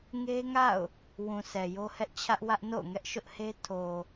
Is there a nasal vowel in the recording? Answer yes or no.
yes